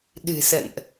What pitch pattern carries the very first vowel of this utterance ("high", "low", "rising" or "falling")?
low